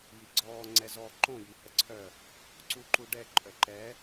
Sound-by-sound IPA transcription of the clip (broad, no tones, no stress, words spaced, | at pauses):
jiɡ͡ǀɔː ŋ͡ǀɛzɔ ǃõ jihəǀʰœ | ǀuǃuɖɛ ǃʼœǃɛ